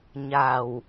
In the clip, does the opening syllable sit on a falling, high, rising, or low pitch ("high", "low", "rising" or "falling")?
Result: low